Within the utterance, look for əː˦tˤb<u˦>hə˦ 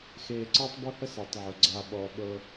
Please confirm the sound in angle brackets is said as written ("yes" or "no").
yes